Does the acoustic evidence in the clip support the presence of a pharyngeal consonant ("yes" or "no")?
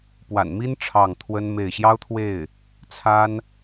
no